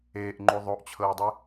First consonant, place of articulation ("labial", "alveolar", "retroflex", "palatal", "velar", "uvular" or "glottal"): glottal